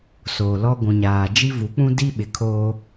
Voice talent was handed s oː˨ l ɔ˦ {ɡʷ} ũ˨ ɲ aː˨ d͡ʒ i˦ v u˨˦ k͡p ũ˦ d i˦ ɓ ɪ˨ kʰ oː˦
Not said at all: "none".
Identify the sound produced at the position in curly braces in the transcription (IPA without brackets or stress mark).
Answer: ɡʷ